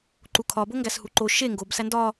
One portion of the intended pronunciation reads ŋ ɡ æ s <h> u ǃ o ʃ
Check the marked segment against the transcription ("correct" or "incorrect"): correct